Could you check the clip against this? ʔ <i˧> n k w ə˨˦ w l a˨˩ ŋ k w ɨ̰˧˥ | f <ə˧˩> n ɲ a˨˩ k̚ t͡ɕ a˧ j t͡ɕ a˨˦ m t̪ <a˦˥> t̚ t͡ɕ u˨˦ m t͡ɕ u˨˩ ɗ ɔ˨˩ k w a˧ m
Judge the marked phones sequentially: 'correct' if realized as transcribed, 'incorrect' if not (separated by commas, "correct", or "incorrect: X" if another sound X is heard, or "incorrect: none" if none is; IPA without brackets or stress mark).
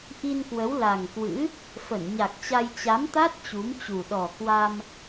correct, correct, correct